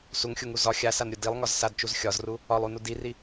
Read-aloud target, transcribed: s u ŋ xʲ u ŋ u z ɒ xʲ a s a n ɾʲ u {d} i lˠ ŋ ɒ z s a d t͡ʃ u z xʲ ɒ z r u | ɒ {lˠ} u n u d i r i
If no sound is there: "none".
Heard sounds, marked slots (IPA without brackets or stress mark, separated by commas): d, lˠ